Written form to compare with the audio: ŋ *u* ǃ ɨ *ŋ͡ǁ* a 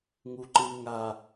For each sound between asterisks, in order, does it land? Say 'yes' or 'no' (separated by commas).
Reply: yes, no